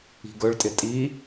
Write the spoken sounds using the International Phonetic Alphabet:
i̤ɡɵɭtʼɪ tʼi

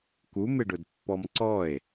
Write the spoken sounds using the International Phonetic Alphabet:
kumɪɖʊdpːɔm ǀɔe̯

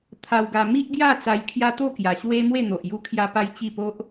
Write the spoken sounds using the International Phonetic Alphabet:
t̪ʰa˧wɡa˧ mi˦ʔɡja˥˧ t͡sa˧jkʰja˦t̪o˥˧ kja˨˩ɕwe˦mwe˥˧n̪o˨ʔ ju˦kʰja˦pa˦jt͡ɕi˥˧ po˦ʔ

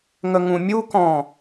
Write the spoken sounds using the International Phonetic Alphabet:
ŋəŋũmʲukɔ̃

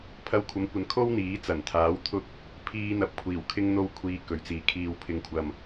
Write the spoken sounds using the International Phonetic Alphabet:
pʰɐ˧wkʷʰɐ˨˥mkʷɐ˨˥n kʰo˥wn̪iː˨˥t͡sɐ˨˩nt̪ʰaː˨˥w t̪ʰʊ˧k̚ | pʰiː˧n̪ɐ˨˥p̚kʷʰiː˨˩w kʰɪ˥ŋn̪o˥wkʷʰiː˧ kɵ˨ɥt͡siː˨kʰiː˧w pʰɪ˧ŋkʷʰɐ˧m

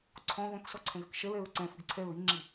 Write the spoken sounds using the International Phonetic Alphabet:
ǀʰɔ̃ ðɔ̃ksɔǀʰɛ̃ɣɘk ʃɛɹɛɹ ǀɛ̃fɨɡ ǀʰɛɹ iŋ͡ǁi

